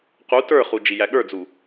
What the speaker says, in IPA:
q u t ə˞ χ u d͡ʒ i j æ ɠ ə˞ d͡z u

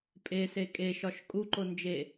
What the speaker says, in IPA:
pʼ e s e kʼ e ʃ ɒ ʃ kʼ u ǃ o n d͡ʒ e

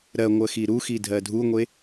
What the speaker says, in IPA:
ɾ ɜ ŋʷ ɜ x i ɾ u x i dʱ ɜ dʱ u ŋʷ e

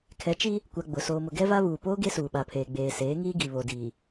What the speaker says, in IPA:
kʰ ɛ˨˦ t͡ʃ i˦ | kʷ a˨ ɡ͡b ʊ˨ s oː˨ m ʊ˨ ɡ ɛ˦ v a˦ β uː˨ p oː˦ ɡ e˦ s uː˨ ɓ a˨ pʰ eː˨ ɡ͡b eː˨ s eː˨˦ ŋ iː˦ ɡ i˨ β o˨ d iː˨

